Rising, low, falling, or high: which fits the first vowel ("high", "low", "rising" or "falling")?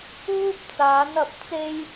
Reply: high